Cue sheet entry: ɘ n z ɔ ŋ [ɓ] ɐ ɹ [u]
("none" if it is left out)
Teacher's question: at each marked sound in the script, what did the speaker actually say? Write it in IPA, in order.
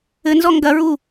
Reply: ɡ, u

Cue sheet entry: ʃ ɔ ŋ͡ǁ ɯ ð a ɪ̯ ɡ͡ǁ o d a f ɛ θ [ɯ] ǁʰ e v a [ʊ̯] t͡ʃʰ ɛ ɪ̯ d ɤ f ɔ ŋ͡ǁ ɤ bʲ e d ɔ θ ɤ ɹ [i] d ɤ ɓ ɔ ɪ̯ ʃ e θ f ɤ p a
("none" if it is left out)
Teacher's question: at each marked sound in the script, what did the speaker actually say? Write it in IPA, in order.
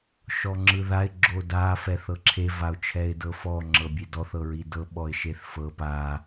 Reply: ɤ, ʊ̯, i

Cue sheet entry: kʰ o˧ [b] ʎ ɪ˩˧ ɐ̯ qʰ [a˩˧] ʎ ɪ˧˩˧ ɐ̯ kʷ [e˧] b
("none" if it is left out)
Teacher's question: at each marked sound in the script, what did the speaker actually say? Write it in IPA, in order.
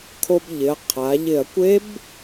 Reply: b, a˩˧, e˦˥

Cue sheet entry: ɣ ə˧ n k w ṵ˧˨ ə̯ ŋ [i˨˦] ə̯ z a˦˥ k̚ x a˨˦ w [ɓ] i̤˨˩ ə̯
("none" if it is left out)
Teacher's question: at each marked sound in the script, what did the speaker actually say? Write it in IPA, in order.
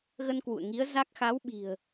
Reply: i˨˦, ɓ

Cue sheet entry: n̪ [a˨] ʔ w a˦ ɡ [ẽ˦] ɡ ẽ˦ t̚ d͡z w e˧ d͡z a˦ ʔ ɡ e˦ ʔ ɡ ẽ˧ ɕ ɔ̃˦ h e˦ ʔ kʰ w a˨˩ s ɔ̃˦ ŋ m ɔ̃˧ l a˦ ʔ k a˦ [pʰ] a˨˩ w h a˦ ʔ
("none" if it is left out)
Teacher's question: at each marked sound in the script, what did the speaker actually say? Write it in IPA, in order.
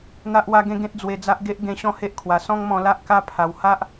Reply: a˦, ẽ˦, pʰ

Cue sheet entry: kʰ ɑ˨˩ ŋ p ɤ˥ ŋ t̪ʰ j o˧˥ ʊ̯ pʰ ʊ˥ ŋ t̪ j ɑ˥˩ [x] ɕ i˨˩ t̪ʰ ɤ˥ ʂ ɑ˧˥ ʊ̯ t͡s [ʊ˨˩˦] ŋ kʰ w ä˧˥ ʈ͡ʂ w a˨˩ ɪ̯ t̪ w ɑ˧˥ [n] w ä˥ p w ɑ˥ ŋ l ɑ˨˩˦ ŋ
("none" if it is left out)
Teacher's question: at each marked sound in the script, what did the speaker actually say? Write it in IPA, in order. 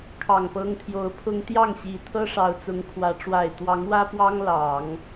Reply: ŋ, ʊ˧˥, ŋ

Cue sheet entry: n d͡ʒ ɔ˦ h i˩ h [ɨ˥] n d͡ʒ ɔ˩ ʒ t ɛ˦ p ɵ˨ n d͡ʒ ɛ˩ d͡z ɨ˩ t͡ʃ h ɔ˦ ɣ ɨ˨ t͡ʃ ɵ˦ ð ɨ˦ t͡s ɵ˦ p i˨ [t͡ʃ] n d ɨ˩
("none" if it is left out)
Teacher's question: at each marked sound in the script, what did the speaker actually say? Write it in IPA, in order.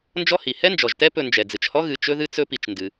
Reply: ɛ˥, t͡ʃ

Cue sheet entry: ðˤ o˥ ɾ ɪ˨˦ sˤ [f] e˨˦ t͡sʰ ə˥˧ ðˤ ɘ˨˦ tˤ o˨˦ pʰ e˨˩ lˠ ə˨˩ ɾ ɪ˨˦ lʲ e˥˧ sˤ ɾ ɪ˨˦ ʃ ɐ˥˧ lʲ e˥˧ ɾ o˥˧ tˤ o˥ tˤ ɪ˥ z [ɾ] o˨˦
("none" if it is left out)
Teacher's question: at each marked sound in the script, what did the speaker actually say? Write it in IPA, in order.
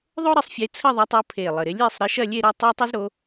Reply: fʲ, ɾ

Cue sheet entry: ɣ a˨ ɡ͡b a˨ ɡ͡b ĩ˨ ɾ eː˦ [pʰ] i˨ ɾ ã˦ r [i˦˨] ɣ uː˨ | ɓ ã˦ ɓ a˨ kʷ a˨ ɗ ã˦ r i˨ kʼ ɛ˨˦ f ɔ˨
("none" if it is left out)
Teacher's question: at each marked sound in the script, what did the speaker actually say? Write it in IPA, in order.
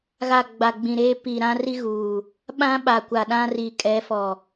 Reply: p, i˦

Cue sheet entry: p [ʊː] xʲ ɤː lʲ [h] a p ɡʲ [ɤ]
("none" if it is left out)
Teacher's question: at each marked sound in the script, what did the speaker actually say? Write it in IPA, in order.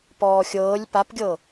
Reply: ɔː, p, ɤ

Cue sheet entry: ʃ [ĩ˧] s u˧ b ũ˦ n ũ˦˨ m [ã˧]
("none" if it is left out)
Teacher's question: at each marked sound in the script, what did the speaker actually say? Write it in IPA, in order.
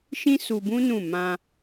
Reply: ĩ˦, ã˧

